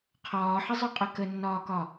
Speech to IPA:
qʰɒːħəzˤʊqʼə kənːɒːkɒ

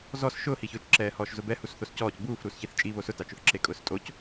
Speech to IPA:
zɔs ʃʊːhiçʊːt͡ʃǁɛː hɔːʃzʊbɛ husθoscɔːc buːf ɾuːsçiθt͡ʃʼi βosʊtat͡ʃʊθ ǁekʼʊːstʼoc

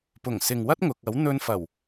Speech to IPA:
pʊ˨˩ŋ sɪ˨ŋwɐ˥t̚ŋʊ˨k̚ ɐ˨˥wn̪ɵ˧nfɐ˨˩w

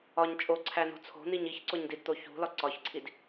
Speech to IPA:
ɒɲ t͡ʃʼoǀʰæno̤ t͡sʰo̤n̪iɲ içǀoɲdidt̪o çṳlɒ ǀɒçǀʰid

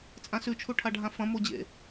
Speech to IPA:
t͡sʼãsʉt͡ʃʰuʈʰa ɖʱãfɐ̃ mod͡ʑḛ

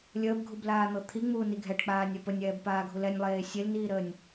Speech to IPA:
lʲəːbɡʱublaːn̪ɤ t̪ʰiŋ͡muːni ɡʱɛʈk͡paːnʲɛ pənʲɛːbpaːɡʱul ɛnʲlˠeː sʲelniːɾəːnʲ

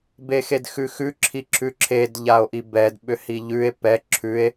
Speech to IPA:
bexedxʉxʉ ǁʰiǁʰʉǁʰed ʎao̯ʔibɛd ɓʏhiʎʉe̯ pɛ ǁʰʉe̯

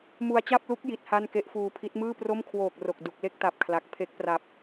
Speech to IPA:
mu˧a̯t͡ɕa˥˩p̚lu˦˥k̚ ji˦˥t̚ha˥˩n ke˦˥ʔfuː˧pʰi˦˥t̚ mɯː˥˩pro˥˩mkʰwoː˨˩k̚ ro˨˩k̚ du˨˩k̚le˥˩k̚ta˨˩p̚ kʰla˨˩k̚ pʰe˦˥k̚pra˨˩p̚

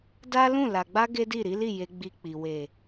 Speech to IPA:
da˦lũ˦˨ la˨ɡ͡ba˧ ɡe˦di˦˨ɾi˨˦li˦˨ je˧ɡ͡bi˧k͡pi˨ we˨

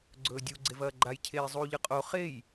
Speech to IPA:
ɡ͡ǀɵːdʲu ɡ͡ǀevɐːɡ͡ǃaj cʰeːzˤuːʎɨqʼo χej

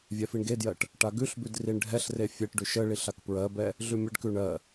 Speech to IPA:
vʲɛfiɳɡedjɜʈ | ʈaɡʉɬbʉd riɳɖʱɛɬre fʲɛʈɖʉ ʃəɭiɬ akpɹɜbɛ | ɮʉmʲəɖkʉ ɳɜ

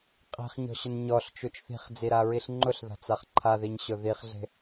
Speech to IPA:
qʼi̤χɲɔ̤ɕʊn ɲɔɬt͡ʃut͡ʃ θi̤χd͡ziɾaɹiɬ ŋ͡ǃʊɬða̤t͡saχ ǃʰaðiɲɕʊ ðiχɮe̤

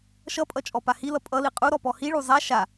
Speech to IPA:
ʃʌpʼʌ t͡ʃʼɔpahilʌ pʼʌli qʼu ɾɔpɔhiɭu zˤa ʃa

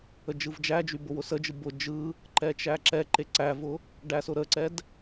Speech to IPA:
əd͡ʒɯvd͡ʒæd͡ʒy bʊwʊsəd͡ʒɯ bʊ d͡ʒɯ | ǃɛt͡ʃæǁɛǃe ǀævʊ | ɖæsʊɾəǀɛd

